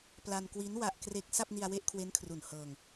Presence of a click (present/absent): absent